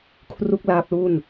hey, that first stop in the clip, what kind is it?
aspirated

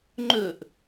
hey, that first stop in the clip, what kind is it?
click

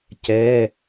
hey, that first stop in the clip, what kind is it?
plain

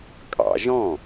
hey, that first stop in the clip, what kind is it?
ejective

